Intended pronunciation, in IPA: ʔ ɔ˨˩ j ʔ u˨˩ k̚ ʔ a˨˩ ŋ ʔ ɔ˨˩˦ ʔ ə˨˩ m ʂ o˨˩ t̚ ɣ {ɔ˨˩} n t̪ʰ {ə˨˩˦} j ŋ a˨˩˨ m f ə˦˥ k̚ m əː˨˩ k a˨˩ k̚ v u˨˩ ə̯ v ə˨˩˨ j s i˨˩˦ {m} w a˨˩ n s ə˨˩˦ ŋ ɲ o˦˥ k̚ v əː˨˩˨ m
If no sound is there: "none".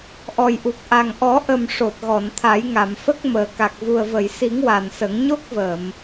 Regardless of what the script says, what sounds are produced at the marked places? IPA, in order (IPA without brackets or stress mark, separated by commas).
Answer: ɔ˨˩˨, a˨˩˦, ŋ